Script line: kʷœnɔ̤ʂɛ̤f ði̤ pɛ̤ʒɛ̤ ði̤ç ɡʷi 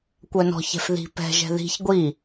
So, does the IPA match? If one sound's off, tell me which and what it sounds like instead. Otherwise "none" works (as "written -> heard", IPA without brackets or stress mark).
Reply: ʂ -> ç